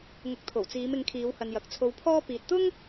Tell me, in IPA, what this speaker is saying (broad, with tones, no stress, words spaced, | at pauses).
ŋʊ˨˥k̚t̪ʰo˨˩w t͡siː˨˧mɪ˨˧ŋkʰiː˨˧whɐ˨n jɐ˨k̚t͡sʰo˧wpʰɔː˥ piː˨t̚t̪ʊ˥ŋ